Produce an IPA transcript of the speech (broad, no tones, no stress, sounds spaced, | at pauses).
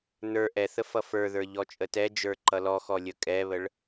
n ə˞ ʔ ɛ θ ə f ʌ f ə˞ ð ə˞ ʎ ɔ t͡ʃʼ ə t ɛ d͡ʒ ə˞ ǃ ʌ l ɔ x ɔ lʲ ə kʼ ɛ β ə ɭ